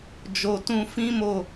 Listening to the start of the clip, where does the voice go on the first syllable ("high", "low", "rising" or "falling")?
low